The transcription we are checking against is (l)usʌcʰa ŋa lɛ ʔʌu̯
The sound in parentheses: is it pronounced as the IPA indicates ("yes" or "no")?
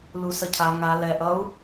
yes